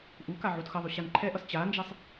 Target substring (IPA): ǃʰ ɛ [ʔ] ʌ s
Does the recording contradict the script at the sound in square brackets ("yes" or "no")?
no